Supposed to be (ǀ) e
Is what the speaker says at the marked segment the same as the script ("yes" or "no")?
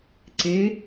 yes